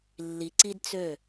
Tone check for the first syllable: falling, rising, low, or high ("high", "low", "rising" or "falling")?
low